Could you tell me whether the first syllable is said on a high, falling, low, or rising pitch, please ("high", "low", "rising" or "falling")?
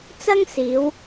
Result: high